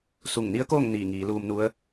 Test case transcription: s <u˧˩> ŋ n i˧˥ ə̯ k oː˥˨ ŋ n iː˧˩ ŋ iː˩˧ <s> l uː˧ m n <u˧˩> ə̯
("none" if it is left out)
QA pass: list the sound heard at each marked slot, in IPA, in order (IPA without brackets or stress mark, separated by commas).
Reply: u˧˩, none, u˧˥